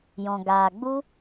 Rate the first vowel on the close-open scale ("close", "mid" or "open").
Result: mid